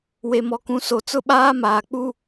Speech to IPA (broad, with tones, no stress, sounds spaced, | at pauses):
w e˨ m ɔ˨ k ũ˨ s o˨ t͡s ʊ˦˨ ɓ aː˦ m aː˨ k͡p u˦